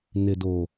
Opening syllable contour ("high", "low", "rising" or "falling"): low